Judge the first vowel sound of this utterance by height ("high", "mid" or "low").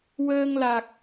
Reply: mid